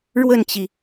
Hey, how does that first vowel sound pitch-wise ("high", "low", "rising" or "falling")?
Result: falling